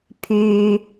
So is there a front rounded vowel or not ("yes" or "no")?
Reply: yes